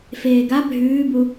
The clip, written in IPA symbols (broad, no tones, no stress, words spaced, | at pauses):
feːɡa bʱʉːbu